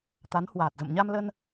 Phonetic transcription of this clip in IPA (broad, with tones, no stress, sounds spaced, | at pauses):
t̪ a˨˦ n h w aː˨˩ t̚ z ə̰˧˨ m ɲ a˧ m l ə˧ n